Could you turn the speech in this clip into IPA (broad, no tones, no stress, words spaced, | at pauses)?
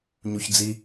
ɲuçd͡zi